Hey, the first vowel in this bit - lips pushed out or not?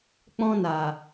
yes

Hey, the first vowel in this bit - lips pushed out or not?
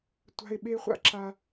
no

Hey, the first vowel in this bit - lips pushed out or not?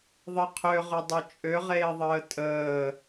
no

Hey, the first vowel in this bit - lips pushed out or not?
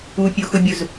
yes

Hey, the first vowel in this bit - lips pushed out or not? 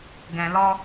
no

